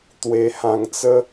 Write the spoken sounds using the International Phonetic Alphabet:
t̪we˧hã˧ŋt͡sə˦

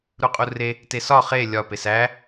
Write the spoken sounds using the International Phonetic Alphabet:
ɾuqʼure | tesɒ χe lʲɒ pesæ

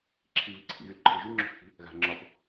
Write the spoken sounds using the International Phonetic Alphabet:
ǁʰiβiǀʰḭɣyl ǃʰɯʒy ŋ͡ǁo̤xθi̤ | ɣa̤ ŋ͡ǁɒp

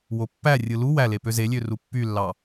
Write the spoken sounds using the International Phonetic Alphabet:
wopːærʲɯ lu wæle pøzelʲø rupːylːɑ

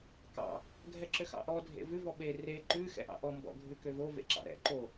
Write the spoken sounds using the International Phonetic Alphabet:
kɑ̰ | ɡʱɛǁøxɑ̰ʔɔ dʱḛvʉ vɔɓe re ǃʉ xɛ̰ʔɑ̰ʔɔ mbɔ̰ ɡʱʉkøvo vḛǁɑ̰ɾɛ̰ ǃo

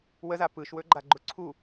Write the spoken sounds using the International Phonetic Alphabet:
wəza pɯʃwɵɡ͡ǃaɡ͡ǃʊ ǀʰu

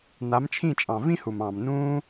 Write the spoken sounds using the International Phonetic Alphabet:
na˨˦mt͡ʃʰĩ˦˨t͡ʃʼɑ̃˨ vĩ˦hu˨mɑ̃ː˨m nũː˧

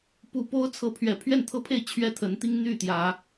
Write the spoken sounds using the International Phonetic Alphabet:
pu˨˩ po˦ʊ̯t͡sʰɤ˨˦ pʰɥɛ˨˩pʰɥɛ˥˨nt̪ʰɤ˦pʰe˥˨ɪ̯ t͡ɕʰɥɛ˦t̪ʰə˨˦nt̪i˦ŋ n̪y˥˨t̪jä˨˦

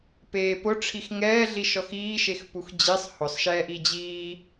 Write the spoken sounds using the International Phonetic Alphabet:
peːpʊ ʈ͡ʂʰixŋɛː ɮiʃɔxiːʃex puxd͡ʑisˤ hʊsˤʃɛːʔi d͡ʑiː

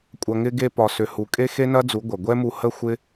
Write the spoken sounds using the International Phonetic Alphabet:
kʷʼɐ˨ŋɪ˧ɡe˧ pɒ˨sʏ˨hu˨ kʼe˦xe˦nɐ˦d͡zu˨˦ ɡʷɐ˨ɡʷɛ˦mu˧ hə˦xʷɪ˦

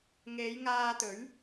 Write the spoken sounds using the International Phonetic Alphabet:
ŋe˨˧jŋaː˧t̪ɵ˨˥ɥ

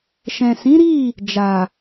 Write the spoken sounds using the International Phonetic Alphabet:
ʃɛ̃˨sĩ˨˦ɾi˦˨ | d͡ʒa˨

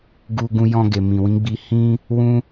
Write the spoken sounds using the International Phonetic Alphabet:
ɡu˧ ɡũ˧jɔ̃˧ɡe˨ mĩ˨wĩ˨˦ ɡ͡bi˧hĩ˦ | wũ˦

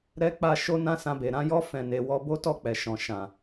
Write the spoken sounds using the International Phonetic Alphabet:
ɾɛ˦k͡pa˦ ʃo˦ nã˦sã˧be˨ ɾã˨˦jɔ˦ fɛ̃˧ne˧ wɔ˧bo˦tɔ˦˨k͡pɛ˨ ʃɔ̃˨ʃã˨

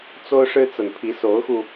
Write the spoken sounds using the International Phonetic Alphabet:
t͡so˦ʊ̯ʂɻ̩˦ t͡sə˨˩npʰi˨˦ so˨˦ʊ̯xu˧

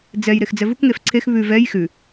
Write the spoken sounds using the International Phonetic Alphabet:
d͡zɛj ɾexd͡zɛvuk ŋefǀʰex βʉ vɛj xʉ

